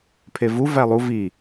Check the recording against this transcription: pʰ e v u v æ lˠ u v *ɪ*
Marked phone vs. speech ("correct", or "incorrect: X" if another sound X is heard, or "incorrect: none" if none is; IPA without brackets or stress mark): incorrect: i